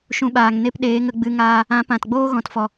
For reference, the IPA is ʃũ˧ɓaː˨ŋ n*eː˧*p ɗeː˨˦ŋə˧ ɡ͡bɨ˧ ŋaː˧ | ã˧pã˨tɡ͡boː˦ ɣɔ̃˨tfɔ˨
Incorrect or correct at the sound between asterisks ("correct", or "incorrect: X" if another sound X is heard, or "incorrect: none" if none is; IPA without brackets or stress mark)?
incorrect: e˧